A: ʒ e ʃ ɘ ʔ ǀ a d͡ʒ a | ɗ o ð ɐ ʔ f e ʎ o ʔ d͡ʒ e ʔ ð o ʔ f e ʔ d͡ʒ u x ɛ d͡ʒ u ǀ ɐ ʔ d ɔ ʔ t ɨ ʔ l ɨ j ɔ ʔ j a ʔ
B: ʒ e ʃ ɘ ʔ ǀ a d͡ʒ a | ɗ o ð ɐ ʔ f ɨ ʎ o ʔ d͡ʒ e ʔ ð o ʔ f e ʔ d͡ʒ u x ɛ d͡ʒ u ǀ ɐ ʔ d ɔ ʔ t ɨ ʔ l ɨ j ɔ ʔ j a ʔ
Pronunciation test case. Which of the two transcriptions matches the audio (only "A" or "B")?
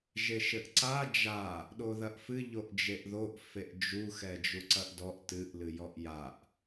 B